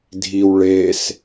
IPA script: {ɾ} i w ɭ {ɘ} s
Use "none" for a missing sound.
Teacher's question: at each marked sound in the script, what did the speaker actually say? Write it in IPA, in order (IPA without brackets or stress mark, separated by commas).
dʱ, e